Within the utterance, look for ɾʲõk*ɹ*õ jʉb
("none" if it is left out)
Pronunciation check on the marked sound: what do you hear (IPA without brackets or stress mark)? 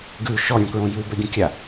ɹ